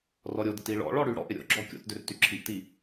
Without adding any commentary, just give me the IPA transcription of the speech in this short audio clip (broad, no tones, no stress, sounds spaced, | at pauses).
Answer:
r ɔ ɾʲ o d ɪ t i ɭ ɔ̰ ɭ ɔ ɽ y ɽ ɔ̰ ʔ ɪ ɾʲ o̰ ɡ͡ǁ ɔ kʲ o̰ t d ʏ r t y ǁʰ i ʔ t i